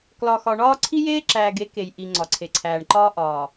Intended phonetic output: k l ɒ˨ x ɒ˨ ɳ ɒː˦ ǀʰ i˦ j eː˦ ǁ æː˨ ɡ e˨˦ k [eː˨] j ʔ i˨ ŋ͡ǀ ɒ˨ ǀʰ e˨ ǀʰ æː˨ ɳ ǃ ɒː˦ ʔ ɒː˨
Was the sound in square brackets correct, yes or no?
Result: no